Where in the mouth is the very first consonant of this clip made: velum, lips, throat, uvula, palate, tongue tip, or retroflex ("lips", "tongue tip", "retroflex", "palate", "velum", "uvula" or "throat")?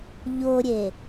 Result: palate